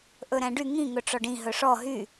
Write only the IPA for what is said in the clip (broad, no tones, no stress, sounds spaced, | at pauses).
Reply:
ʔ ɵ ɾ æ̃ ɖ y ŋ ĩ ŋ ɵ ʈ͡ʂ ɔ ɖ ĩ ɦ ɵ ʂ ɔ ɦ y